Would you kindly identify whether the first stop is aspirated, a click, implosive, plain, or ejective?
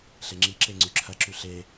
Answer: click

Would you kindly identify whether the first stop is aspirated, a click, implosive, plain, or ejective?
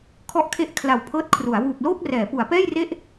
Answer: aspirated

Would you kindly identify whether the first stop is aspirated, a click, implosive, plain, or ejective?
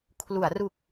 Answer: aspirated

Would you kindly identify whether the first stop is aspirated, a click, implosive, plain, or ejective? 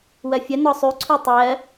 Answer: click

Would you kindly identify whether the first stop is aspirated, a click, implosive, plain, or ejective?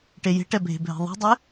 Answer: plain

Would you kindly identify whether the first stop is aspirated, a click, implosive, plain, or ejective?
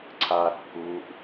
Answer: click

